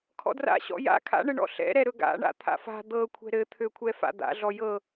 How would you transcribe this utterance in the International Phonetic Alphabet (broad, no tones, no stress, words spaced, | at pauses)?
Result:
kʰɔ̰dra̰ɕɔ̰ ja̰ kʰa̰ɳɘɳɔ̰ ɬɛ̰ɾɛ ɾɵɡa̰ɳa̰ t̪ʰa̰fa̤ d̪ɤkʷʰɛ̤ ɾɘt̪ʰøkʷʰɛfa̰ d̪a̰ɮɔ jɤ